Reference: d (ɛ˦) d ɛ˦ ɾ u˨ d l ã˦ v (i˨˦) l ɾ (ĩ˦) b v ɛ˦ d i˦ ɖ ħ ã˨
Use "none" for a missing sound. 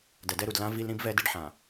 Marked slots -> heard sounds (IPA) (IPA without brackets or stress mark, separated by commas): ɛ˨, i˦, ĩ˦